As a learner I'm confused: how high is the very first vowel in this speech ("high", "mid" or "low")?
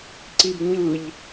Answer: high